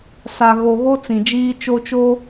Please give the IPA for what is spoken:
s a˨ ɣ o˨ ɣ o˦ t͡s ĩ˨ d͡ʒ iː˦ t͡ʃ o˦ t͡ʃ o˦

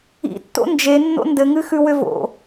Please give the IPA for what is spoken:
ḭ tː o̰ n d͡ʒ e nː o̰ n d ɘ ŋ ɨ x ʉ w ʏ v o̰

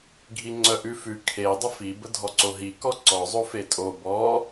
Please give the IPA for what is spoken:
ɡʱ i ŋ͡ǀ œ ʔ ʉ f ʉ kʰ e dˤ ə f i b ə dʱ ɔ ǀ o ɦ i k ɔ ǀ ɔ zˤ o f e tʼ o b ɔ

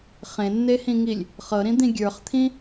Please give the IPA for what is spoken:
χ ẽ nː e h ĩ ŋ i lʲ | χ ɤ ɾ ĩ d̪ ĩ ɡʲ ə˞ χ t̪ʰ ĩ

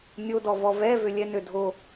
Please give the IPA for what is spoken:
nʲ o d ɔ v ɔ v ɛ v ø lʲ ɛ n ø dʱ o

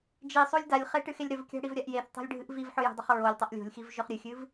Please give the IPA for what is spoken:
d͡ʒ i sˤ o lʲ d a lʲ χ e ʈ ɨ x e lʲ ɾ ɵ v kʲ a̤ ɽ i v ɾʲ a ʔ j e θ tˤ o̤ lʲ ɖʱ ɨ ʔ v i v ħ ɵ j o̤ dˤ ɵ χ ɹ o lʲ tˤ ɐ ʔ lʲ o̤ lʲ x i v ʒ ɵ χ ɾʲ ɨ xʲ ɨ v

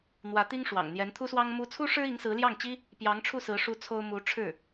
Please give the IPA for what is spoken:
n̪ w ä˧˥ t̪ i˥ ŋ ʂ w ɑ̰˨˩ ŋ n̪ j ɛ˧˥ n t̪ʰ u˥ s w ɑ˥ ŋ m u˥ t͡sʰ u˥ ʂ ɻ̩˥ i˧˥ ŋ s ɹ̩˧˥ l j ɑ˥˩ ŋ t͡ɕ i˥ | p j ɑ˧˥ ŋ ʈ͡ʂʰ u˥˩ s ɹ̩˧˥ ʂ u˥ t͡sʰ o˥ ʊ̯ m u˧˥ ʈ͡ʂʰ ɻ̩˥˩

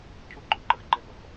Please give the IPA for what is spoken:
cʰ u˥˩ ɡ͡ǃ ʊ˨˩˦ ǃ ə˨ x ɡ͡ǃ ɛ˥˧ ɠ ɔ̰˨ x

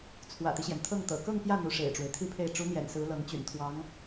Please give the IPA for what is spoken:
t͡sʰ w ä̰˨˩ t̪ i˦ ɕ j ɛ˩ n t̪ʰ ɤ˥˩ ŋ t̪ ɤ̰˨˩ k ɤ˥˧ ŋ p j ä˥˩ n̪ u˧˥ ʂ ḛ˨˩ ɪ̯ ʈ͡ʂ w e˦ ɪ̯ t̪ʰ i˥˧ pʰ e˥˩ ɪ̯ ʈ͡ʂ u˧˥ n̪ j ɛ̰˨˩ n s ɹ̩˧˥ l ɤ˧˥ ŋ t͡ɕ y̰˨˩ n t̪ʰ w ɑ˧˥ ŋ

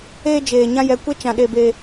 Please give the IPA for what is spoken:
eː˧ d͡ʒ eː˨ ɲ ã˦ j ɛ˨ kʷ e˦ t͡ʃ ã˨ ɗ e˨ b e˨

